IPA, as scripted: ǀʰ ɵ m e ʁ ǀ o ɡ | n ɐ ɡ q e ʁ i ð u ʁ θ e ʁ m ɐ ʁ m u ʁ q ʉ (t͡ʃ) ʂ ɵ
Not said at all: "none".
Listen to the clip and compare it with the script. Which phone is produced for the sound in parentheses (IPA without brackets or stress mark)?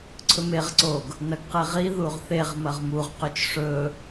t͡ʃ